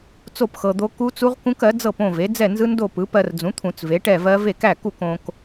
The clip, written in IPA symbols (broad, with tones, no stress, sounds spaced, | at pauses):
t͡s o˥˨ p x ɤ˧ d̪ o˦˥ k u˦˥ t͡s u˦˥ ʁ k ũ˦˥ k ɜ˩˥ d͡z ɤ˥˨ p õ˥˨ v e˩˥ d͡z ɛ˥˨ n z ɯ˦˥ n d o˥˨ p ɯ˩˥ p ɜ˧ r d͡z ũ˩˥ t̪ʰ ũ˧˩˧ t͡s v e˩˥ ʈ ɛ˥˨ v ɜ˦˥ v e˥˨ k æ˥˨ k u˥˨ k õ˧ k